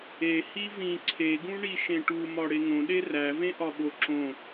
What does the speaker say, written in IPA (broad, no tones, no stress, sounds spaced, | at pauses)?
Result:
e h i v ĩ ǀʰ e ɡ ũ ɳ i ʃ ẽ ʈ u m ɒ ɽ e ŋ õ ɗ e r æ v ẽ ʔ ɒ ɓ o ǁ õ